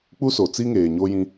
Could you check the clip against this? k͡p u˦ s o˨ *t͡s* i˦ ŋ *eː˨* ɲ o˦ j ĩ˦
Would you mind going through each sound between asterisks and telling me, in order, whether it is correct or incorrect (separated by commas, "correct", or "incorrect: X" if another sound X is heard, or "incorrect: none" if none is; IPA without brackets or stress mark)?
correct, correct